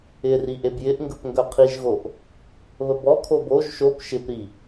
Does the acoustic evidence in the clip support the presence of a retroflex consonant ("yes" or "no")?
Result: no